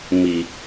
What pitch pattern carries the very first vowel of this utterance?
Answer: low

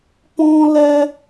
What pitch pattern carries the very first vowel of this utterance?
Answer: high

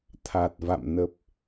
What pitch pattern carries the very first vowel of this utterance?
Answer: low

